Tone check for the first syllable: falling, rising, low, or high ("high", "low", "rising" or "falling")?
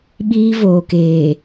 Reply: high